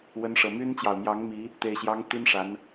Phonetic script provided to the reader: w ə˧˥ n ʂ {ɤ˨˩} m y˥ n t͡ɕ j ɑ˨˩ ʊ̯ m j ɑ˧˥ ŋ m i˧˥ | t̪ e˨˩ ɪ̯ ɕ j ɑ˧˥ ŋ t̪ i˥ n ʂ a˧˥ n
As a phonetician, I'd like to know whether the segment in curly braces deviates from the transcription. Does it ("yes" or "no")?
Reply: no